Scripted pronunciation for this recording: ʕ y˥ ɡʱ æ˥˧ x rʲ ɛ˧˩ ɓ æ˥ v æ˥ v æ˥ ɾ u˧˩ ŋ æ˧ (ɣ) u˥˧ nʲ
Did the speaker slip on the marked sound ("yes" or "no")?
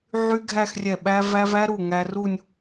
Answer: yes